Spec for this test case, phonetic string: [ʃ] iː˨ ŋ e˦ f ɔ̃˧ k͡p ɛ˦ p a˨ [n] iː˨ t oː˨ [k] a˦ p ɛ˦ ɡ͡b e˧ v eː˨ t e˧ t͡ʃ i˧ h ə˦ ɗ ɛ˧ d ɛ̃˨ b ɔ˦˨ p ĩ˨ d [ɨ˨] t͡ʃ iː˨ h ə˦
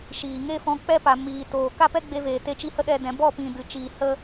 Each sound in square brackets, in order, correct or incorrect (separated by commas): correct, incorrect, correct, correct